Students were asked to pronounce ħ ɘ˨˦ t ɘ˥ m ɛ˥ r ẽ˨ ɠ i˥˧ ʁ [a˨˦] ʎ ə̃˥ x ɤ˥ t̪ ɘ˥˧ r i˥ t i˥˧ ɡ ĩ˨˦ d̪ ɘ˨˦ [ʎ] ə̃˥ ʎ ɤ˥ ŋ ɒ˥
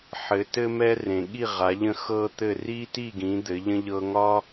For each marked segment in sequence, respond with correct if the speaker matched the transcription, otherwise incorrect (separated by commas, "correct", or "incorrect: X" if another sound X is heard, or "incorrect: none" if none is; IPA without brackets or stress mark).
correct, correct